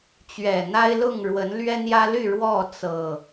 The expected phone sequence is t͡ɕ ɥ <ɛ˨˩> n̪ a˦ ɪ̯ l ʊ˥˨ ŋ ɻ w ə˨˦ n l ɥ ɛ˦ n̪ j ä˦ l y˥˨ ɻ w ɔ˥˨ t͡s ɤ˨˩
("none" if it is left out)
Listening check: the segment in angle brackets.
ɛ˨˩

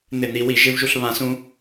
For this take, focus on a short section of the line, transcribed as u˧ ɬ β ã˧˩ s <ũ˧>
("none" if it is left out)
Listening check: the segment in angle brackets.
ũ˧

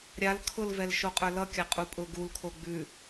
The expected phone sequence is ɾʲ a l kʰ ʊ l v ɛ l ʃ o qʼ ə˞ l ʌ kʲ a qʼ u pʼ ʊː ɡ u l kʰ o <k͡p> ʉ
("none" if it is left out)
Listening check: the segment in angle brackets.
ɡ͡b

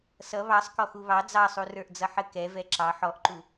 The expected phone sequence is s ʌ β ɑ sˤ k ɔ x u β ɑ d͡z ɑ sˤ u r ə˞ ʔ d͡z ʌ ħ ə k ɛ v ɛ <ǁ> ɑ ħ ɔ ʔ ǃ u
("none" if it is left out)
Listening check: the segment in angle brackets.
ǁ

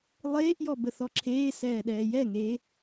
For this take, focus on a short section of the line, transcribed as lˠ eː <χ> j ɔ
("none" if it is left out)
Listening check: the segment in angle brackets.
ʔ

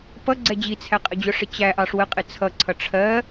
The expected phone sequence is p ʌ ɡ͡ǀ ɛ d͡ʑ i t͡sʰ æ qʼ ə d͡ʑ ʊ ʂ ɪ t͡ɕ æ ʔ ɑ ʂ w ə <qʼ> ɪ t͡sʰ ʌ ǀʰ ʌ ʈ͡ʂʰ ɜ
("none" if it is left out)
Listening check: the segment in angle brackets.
qʼ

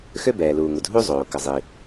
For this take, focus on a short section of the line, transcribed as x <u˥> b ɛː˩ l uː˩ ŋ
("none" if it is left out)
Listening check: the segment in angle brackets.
ø˥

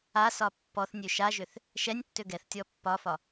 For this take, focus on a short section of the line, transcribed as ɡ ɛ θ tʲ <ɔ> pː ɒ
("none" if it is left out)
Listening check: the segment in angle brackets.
ɔ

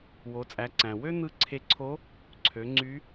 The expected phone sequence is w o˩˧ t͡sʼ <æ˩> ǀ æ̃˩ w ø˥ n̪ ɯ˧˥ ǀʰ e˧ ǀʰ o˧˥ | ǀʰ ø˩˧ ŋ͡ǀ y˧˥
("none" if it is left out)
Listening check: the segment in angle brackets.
æ˩˧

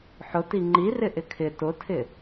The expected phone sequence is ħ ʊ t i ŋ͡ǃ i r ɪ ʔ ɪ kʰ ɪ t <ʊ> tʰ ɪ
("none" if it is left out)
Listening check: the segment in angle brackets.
ʊ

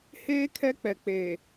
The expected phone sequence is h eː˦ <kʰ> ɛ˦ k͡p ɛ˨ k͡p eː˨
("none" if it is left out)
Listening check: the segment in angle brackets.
kʰ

